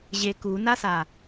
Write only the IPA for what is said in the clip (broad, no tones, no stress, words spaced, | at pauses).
ʑe kunasa